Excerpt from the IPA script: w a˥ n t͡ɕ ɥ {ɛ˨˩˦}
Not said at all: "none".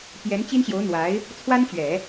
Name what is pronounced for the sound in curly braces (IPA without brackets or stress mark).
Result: ɛ˨˩˦